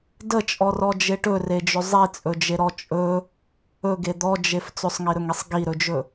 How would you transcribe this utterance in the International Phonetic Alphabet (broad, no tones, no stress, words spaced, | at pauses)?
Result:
dət͡ʃʼɔrɔd͡ʒe ʈɵred͡ʒɵ zˤit͡sʼɵd͡ʒeɾɔ t͡ʃʼɵ | ɵɡe d̪ɔd͡ʒef t͡sɵsˤŋiɾɵŋisˤ ɡiɾɵd͡ʒɵ